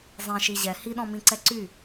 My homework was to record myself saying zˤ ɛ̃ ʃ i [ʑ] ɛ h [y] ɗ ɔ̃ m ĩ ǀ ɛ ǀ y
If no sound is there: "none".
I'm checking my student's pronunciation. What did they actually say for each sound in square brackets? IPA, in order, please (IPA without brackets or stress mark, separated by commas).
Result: ʑ, i